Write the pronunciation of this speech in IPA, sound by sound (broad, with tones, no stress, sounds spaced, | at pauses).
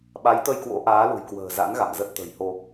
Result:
ɓ a˨˦ j t̪ ə˧ j k w o̰˧˥ ʔ aː˨˦ l ṳ˨˩ j k w ə̤ː˨˩ z a̰˧˥ n ɣ a̰˧˨ m z ə˦˥ t̚ t̪ ə̤˨˩ j h o˧